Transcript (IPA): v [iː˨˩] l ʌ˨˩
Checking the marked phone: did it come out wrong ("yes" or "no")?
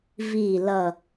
no